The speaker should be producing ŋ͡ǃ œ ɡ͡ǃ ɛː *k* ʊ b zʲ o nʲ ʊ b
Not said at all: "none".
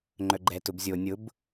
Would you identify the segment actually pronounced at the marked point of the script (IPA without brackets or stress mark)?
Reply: t